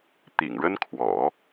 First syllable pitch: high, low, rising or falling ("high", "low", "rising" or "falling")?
low